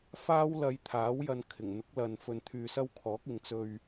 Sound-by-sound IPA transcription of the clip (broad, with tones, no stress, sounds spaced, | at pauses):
f aː˥ w l ɐ˧ j t̪ʰ aː˨˥ w j ɐ˧ n kʰ ɪ˨˩ ŋ n̪ ʊ˨˥ k̚ l ɐ˨ n f ɵ˧ n t̪ʰ yː˧ s ɐ˥ w kʰ ɔː˨˥ k̚ ɪ˨ ŋ t͡s ɵ˧ ɥ